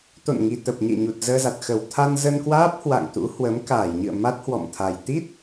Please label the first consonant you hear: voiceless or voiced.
voiceless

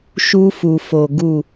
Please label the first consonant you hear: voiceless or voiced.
voiceless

